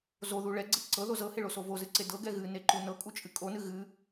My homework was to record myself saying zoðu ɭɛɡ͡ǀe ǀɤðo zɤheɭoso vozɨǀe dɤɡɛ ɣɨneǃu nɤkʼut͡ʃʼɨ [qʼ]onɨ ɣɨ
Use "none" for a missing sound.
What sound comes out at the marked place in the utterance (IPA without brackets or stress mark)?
kʼ